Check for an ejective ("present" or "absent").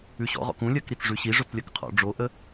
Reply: absent